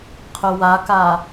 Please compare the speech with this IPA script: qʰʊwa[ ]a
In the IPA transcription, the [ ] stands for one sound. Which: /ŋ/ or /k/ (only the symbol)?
k